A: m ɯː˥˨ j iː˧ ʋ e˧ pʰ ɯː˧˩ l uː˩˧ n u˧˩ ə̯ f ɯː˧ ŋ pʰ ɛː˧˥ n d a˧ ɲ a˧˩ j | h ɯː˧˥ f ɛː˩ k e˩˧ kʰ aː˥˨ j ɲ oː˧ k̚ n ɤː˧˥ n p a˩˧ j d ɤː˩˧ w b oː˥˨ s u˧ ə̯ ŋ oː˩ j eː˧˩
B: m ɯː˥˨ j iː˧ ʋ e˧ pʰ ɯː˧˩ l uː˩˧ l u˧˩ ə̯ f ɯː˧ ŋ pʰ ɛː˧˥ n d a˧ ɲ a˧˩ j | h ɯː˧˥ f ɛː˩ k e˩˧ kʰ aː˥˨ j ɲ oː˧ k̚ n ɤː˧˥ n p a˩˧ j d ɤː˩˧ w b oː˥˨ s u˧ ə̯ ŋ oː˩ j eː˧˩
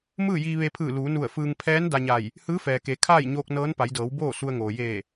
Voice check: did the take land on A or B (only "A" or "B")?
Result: A